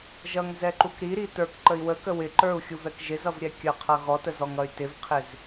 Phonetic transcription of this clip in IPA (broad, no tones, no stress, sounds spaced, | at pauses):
ʒ ʌ ŋ z ɛ ǃ u k ɾ i ɾ i t ə˞ k ǃ ə i̯ w ə k ə w ɪ ǃ ə˞ u̯ xʲ u v ɛ k ʒ ɪ z ʌ v ɾʲ ɛ kʲ ə qʰ ʌ ɣ ɔ t ə z ɔ ŋ ʌ y̯ t ɪ v qʰ ɪ z